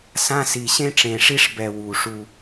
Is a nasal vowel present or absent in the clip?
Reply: present